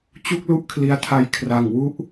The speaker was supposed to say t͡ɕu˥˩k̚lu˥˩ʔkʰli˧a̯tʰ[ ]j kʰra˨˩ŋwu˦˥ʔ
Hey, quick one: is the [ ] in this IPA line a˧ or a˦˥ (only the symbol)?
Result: a˦˥